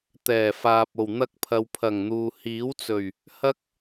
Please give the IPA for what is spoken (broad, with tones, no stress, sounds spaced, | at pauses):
t̪ ɛː˨˩ f aː˨ p̚ o˨˩ w n̪ ɐ˧ k̚ pʰ ɐ˨ w pʰ ɐ˨˩ ŋ n̪ uː˨ h iː˨˥ w t͡s ɵ˨˩ ɥ | h ɐ˥ k̚